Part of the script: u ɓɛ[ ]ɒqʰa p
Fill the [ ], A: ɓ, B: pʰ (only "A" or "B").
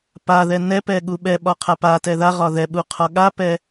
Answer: A